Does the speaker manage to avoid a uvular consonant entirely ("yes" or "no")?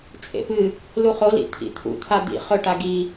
no